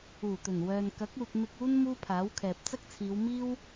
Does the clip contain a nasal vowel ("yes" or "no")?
no